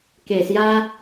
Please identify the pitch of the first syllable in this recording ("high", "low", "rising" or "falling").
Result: low